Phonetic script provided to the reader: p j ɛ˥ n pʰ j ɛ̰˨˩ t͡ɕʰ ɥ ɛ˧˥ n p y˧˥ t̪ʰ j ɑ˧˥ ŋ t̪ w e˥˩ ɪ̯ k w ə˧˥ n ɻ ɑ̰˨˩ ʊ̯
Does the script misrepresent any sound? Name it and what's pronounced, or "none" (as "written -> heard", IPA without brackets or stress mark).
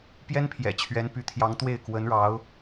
ɑ̰˨˩ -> ɑ˧˥